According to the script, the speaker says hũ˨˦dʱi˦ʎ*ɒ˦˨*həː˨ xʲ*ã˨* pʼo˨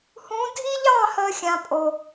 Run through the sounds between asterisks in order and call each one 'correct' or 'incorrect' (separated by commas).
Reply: incorrect, correct